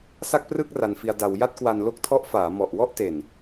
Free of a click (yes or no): yes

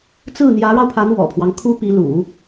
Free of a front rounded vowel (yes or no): yes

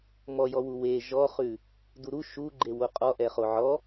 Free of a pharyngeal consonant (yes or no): no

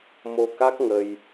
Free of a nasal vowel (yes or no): yes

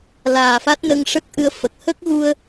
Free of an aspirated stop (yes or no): yes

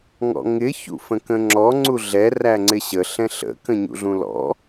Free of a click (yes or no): no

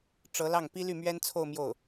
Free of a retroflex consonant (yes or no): no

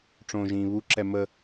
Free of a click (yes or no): no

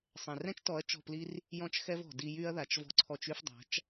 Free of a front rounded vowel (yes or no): no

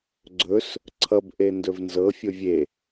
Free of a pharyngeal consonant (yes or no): yes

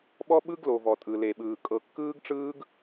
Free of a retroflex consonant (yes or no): no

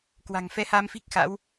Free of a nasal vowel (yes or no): yes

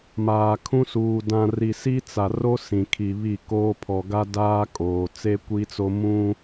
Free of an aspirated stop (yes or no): no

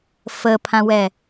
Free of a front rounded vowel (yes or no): yes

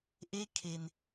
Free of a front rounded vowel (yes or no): yes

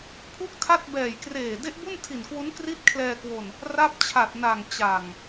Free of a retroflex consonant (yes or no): yes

